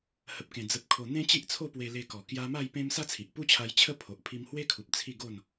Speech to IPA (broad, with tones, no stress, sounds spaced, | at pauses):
h ə˨ p̚ k ẽ˨˩ d͡z ə˨ p̚ kʰ o˨˩ n̪ ẽ˦ t͡ɕ i˦ ʔ t͡sʰ o˥˧ p w e˧ l e˧ k ɔ˨˩ k j a˧ m a˥˧ j p ẽ˦ m s a˦ t͡sʰ i˨ ʔ p u˦ t͡ɕʰ a˧ j t͡ɕʰ ə˦ pʰ o˨ ʔ pʰ i˧ m h w e˦ kʰ u˨ p̚ t͡sʰ i˥˧ ɡ o˥˧ n